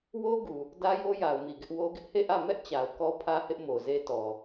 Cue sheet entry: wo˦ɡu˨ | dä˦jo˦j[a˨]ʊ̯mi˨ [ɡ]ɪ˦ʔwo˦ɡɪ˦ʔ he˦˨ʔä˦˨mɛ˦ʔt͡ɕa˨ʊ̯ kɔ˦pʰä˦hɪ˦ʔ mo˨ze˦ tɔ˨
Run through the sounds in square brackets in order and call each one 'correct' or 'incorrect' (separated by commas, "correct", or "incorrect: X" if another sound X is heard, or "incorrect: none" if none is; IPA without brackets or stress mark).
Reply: correct, correct